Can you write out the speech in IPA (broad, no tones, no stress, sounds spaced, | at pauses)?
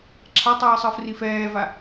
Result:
ǁʰ a tˤ ɯː sˤ ɯ f r i f ɛː v a